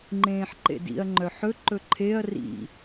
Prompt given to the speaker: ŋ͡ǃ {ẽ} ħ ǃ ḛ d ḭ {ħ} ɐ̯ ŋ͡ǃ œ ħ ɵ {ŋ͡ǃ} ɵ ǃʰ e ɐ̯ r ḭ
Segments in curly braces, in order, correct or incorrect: incorrect: ẽː, incorrect: none, incorrect: ǃ

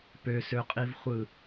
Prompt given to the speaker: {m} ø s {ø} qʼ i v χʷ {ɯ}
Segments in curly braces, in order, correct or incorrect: incorrect: p, correct, correct

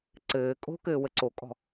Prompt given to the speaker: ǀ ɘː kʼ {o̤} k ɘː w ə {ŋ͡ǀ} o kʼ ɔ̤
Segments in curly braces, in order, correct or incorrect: correct, incorrect: ǀ

